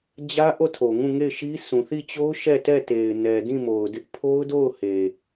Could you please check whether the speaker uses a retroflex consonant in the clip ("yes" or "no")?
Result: no